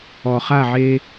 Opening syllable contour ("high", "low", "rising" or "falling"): low